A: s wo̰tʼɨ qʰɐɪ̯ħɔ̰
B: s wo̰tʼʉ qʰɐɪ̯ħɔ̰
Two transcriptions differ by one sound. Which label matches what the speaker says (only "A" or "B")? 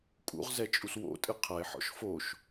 A